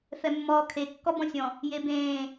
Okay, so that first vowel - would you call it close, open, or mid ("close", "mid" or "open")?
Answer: mid